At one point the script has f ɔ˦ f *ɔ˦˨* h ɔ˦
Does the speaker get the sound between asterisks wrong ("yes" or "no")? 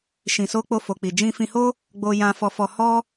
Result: yes